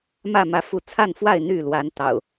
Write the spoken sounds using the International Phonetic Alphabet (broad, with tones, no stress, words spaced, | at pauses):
mä˥˨ mä˨˦fu˨˦t͡sʰa˥˨nfwa˥˨ɪ̯ n̪y˥˨lwa˨˦nt̪ɑ̰˨˩ʊ̯